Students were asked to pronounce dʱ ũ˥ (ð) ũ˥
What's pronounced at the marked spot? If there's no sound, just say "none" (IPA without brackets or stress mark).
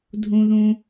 ð